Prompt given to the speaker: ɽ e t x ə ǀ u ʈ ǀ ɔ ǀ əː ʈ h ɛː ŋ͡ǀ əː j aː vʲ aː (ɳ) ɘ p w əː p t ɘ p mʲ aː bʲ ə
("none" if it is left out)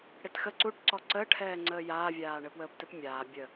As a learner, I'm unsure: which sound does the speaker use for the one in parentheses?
ɳ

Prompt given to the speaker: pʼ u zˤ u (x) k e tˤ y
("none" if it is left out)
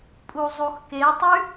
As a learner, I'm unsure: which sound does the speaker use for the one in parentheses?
x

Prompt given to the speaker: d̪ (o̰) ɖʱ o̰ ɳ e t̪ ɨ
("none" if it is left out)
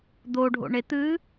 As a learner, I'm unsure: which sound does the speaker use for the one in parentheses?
o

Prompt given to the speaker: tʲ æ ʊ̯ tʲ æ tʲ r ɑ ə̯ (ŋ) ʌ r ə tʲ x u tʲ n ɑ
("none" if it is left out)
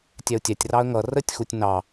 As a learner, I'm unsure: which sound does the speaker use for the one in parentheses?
ŋ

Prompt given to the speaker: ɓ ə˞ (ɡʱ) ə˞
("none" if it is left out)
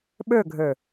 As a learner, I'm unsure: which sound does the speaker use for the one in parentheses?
ɡʱ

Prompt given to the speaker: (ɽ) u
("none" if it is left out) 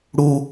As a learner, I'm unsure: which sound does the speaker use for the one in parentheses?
ɽ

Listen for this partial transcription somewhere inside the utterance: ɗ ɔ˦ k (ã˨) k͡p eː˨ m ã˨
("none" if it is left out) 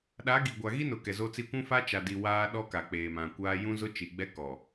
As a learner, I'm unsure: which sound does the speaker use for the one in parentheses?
a˨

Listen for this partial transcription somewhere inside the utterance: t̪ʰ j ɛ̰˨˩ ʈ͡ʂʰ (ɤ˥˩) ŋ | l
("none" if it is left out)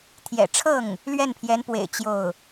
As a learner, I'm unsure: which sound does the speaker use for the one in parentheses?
ɤ˥˩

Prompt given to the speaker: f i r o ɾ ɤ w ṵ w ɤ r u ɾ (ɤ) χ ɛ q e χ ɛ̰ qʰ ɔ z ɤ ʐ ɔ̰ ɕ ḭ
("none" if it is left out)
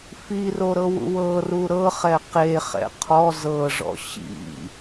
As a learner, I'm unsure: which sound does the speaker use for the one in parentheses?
ɤ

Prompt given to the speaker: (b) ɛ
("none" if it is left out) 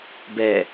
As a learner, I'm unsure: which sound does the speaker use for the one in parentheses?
b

